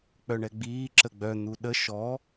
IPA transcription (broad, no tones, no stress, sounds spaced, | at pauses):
k͡p œ ɳ ɛ ɡ͡b iː ǁ ə ɡ͡b œ n̪ u ɗ ə ʃ ɔ